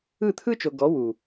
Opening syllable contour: falling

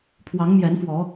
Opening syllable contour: rising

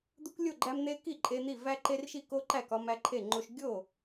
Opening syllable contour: high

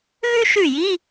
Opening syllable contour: high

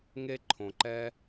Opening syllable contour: high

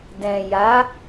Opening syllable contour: low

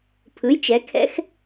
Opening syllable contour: rising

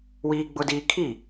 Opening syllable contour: high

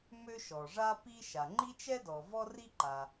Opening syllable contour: high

